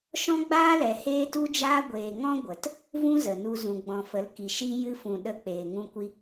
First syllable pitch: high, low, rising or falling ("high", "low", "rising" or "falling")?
high